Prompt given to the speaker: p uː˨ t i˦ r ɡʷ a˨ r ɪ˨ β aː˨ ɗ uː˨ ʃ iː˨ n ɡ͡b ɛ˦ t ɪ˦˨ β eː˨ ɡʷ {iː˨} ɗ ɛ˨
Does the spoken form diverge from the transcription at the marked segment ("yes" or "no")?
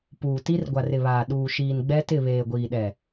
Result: no